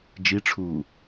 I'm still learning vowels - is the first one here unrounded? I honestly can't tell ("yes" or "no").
yes